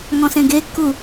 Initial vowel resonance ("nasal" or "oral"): nasal